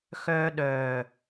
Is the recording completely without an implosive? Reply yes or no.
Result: no